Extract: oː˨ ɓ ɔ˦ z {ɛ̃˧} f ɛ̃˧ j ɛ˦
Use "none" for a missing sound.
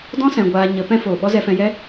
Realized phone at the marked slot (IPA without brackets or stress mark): ɛ˧